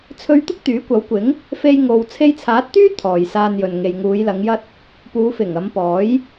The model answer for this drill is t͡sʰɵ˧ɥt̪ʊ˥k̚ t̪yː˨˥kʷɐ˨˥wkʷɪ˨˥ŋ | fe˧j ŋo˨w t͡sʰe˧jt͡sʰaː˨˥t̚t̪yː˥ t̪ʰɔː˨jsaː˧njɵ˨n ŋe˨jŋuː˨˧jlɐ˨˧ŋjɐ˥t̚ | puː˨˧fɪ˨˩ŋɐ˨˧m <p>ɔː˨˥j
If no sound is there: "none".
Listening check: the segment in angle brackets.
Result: p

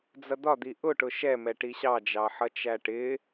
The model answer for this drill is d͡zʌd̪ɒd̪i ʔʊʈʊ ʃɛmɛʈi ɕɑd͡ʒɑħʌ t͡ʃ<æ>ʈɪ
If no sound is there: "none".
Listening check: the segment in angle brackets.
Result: æ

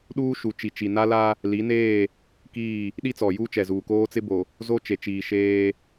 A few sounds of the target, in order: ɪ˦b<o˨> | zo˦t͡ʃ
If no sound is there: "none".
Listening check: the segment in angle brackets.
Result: o˨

